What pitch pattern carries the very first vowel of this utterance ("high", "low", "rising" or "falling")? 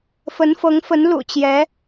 rising